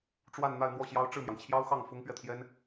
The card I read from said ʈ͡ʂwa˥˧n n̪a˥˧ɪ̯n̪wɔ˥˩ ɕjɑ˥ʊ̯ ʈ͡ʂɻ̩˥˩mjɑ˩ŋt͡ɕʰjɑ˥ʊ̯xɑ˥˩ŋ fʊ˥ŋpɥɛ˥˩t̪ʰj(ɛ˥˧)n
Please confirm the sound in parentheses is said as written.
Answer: no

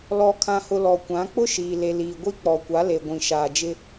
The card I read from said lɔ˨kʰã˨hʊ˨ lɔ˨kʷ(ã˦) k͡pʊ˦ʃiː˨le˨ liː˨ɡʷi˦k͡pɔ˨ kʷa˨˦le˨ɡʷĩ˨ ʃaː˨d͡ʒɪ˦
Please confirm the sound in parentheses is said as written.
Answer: no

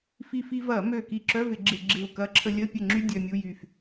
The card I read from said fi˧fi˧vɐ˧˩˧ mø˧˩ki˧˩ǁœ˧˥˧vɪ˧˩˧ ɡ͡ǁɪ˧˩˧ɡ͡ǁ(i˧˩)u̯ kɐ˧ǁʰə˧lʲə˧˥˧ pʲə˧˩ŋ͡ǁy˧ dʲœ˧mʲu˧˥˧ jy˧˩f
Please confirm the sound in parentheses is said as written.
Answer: no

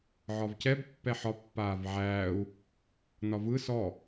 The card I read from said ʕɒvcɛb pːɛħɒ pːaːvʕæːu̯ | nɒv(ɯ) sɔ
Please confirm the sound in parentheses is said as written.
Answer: yes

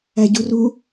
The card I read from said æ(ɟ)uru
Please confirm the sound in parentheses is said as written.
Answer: yes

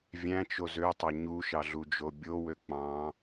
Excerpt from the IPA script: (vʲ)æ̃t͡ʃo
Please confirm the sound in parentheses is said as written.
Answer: yes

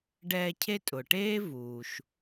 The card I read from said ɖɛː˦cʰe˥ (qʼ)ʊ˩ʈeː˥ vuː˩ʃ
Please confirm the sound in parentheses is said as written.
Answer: no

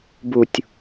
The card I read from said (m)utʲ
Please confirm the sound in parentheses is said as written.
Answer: no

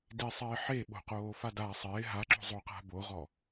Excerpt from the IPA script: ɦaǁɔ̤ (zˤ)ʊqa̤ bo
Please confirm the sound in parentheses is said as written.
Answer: yes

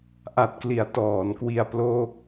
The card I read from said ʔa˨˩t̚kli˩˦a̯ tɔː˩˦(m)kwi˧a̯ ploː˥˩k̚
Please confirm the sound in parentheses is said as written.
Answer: no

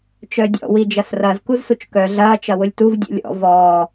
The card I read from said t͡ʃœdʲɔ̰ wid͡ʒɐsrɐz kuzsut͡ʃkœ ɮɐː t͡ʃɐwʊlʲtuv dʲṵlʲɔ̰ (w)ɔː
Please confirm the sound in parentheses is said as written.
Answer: no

